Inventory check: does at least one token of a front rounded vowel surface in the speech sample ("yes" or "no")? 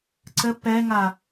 no